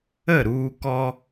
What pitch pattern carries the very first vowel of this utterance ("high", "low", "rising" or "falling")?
falling